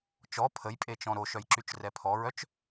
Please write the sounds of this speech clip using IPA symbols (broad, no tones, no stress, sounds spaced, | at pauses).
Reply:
t͡ʃ ɔ pʰ ə j pʼ e t͡ʃ ɔ̃ ɾ o ʃ œ j ǁ y t͡ʃ r ɛ pʰ ɔ ɹ œ t͡ʃ